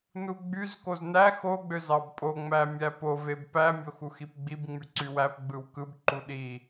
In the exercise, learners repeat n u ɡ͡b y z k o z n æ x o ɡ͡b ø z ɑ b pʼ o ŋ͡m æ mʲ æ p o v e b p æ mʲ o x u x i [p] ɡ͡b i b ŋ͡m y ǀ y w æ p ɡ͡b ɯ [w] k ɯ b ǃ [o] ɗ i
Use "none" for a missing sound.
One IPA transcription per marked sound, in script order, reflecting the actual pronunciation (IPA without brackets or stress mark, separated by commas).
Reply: p, w, u